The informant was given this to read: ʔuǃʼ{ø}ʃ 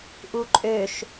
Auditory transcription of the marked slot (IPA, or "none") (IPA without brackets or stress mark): ø